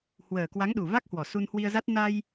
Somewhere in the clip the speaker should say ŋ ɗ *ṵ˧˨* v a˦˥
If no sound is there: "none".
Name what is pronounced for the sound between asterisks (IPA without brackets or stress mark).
u˨˩